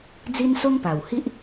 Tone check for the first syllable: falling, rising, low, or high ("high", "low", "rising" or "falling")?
high